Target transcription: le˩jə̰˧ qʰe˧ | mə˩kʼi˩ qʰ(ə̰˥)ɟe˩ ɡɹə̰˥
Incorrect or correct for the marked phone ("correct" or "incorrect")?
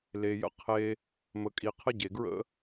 incorrect